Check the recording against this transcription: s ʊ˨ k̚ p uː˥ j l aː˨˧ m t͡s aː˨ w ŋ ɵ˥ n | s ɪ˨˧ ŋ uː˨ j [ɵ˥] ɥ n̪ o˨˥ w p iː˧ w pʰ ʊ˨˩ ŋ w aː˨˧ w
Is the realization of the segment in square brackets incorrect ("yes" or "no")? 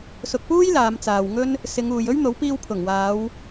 no